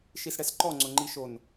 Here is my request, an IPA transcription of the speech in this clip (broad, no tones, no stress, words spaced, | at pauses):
ʃisɽɛsǃɔ ŋ͡ǀʊŋ͡ǃiʃon